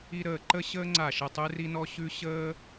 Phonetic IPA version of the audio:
i˦ ɾ əː˧˩ ǃ ə˦ ɕ əː˦ ŋ͡ǀ a˧˩ ʃ ə˧˩ tˤ ʉ˦ r i˦ n ɔ˦ ɕ ʉ˦ ɕ əː˦

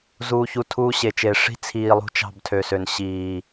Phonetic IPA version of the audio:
z uː˨ ç u˨ tʰ uː˦ ɕ e˨ t͡ʃ eː˨ ʂ i̤˦ t͡sʰ iː˨ lˠ ṳ˦ t͡ʃ ɑ̤˦˨ b tʰ ø˨ s ø˨ n ɕ iː˨

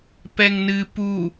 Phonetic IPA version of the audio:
p ɛ ŋ n ɨ p u

